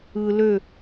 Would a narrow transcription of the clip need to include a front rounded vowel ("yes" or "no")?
yes